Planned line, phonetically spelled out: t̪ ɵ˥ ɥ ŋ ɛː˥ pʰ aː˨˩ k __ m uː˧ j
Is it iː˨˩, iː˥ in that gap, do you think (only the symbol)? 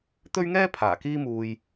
iː˥